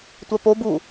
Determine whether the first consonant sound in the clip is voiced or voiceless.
voiceless